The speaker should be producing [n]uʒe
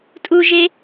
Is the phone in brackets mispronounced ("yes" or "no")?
yes